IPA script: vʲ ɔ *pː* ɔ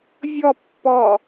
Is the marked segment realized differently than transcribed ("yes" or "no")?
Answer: no